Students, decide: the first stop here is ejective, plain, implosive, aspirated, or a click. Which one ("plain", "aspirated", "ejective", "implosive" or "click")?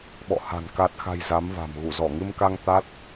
implosive